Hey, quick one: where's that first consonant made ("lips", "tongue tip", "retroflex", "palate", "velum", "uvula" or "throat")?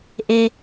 throat